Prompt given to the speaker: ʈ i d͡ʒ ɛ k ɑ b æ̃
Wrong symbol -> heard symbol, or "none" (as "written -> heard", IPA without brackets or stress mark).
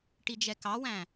b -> w